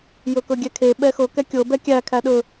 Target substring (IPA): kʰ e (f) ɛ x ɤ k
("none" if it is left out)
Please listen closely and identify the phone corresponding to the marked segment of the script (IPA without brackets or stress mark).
ɓ